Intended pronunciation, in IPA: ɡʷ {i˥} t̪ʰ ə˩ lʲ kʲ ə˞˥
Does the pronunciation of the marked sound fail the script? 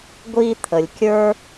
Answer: no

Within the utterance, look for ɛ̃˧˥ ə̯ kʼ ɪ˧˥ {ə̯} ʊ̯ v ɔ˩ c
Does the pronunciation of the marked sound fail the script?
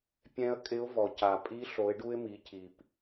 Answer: yes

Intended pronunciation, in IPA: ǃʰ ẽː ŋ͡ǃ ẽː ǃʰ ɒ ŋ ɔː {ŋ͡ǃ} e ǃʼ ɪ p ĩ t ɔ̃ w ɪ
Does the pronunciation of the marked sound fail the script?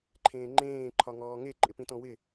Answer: yes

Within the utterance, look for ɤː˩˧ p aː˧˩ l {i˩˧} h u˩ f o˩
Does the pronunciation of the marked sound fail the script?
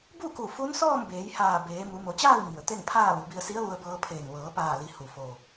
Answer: no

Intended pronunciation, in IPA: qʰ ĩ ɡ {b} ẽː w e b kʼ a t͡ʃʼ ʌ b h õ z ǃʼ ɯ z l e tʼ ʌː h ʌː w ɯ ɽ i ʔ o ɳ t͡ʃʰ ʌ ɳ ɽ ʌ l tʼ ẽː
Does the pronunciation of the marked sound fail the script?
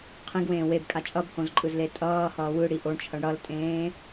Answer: yes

